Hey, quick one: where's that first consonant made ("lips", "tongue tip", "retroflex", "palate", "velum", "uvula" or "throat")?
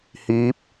throat